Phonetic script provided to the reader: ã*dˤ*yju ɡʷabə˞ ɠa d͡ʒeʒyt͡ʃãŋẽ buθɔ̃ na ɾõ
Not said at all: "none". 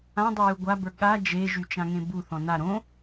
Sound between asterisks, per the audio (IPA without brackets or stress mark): dˤ